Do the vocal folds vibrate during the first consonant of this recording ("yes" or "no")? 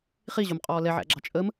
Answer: no